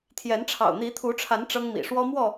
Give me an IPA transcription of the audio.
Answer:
t̪ʰ j ɛ˨˦ n ʈ͡ʂʰ ɑ̰˨˩ ʊ̯ n̪ i˨˦ t̪ʰ u˨˦ ʈ͡ʂʰ a˨˦ n ʈ͡ʂ ɤ˦ ŋ m ḭ˨˩ ʂ w ɔ˦ m w ɔ˥˨

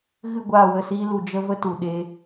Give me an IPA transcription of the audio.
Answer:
ɣ ɨ˦˨ ɡʷ aː˦˨ w ə˦˨ s iː˦ l u˧ d͡ʒ ə˦ v ə˦ t u˨ ɗ e˦

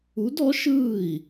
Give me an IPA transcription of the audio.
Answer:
u˧˥ d ɔ˧˥ ʃ ɯː˥˨ i̯

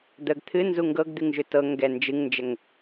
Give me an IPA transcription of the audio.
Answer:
d̪ ə ɡ t̪ʰ ɨ n z u ŋ ɡ ɤ ɡ d̪ ɨ ŋ ʒ ʏ t ɤ ŋ ɡ ɛ n d͡ʒ ɨ ŋ n d͡ʒ ə ŋ

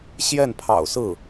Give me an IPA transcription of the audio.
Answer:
ɕ j ɛ˥˩ n pʰ ɑ̰˨˩ ʊ̯ s ɹ̩˥˩

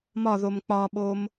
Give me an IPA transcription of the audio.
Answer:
m ɒ ð o m k͡p ɒ ɓ o m

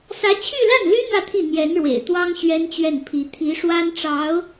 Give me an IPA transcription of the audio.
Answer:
s ä˧˥ t͡ɕʰ y˥˧ l a˥˩ n l y˥ n̪ ä˥˧ t̪ʰ i˥˩ n̪ j ɛ˧˥ n ɻ w ḛ˨˩ ɪ̯ t̪ w ɑ˥ ŋ ɕ ɥ ɛ˥ n t͡ɕ ɥ ɛ˥˩ n pʰ i˧˥ t̪ʰ i˧˥ ʂ w a˥ n ʈ͡ʂ ɑ˧˥ ʊ̯

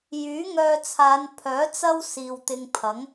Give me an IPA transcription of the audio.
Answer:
j yː˨˥ ŋ œː˧ t͡sʰ aː˨˧ n pʰ œː˨˥ t͡s ɐ˥ w s iː˨ w t̪ ɪ˧ ŋ pʰ ɐ˨˥ ŋ

